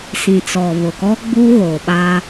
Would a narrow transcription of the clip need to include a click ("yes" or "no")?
no